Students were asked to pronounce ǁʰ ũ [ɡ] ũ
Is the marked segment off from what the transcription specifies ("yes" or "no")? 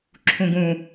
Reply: no